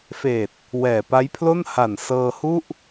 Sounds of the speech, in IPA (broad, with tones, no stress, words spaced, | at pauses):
feː˨˩t̚ | wɛː˨˩pa˦˥jpʰlo˥˩n ha˨˩nsɤː˧ hu˥˩ʔ